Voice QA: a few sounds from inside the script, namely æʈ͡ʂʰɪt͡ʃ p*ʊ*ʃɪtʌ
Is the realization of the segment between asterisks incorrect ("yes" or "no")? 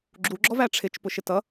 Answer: no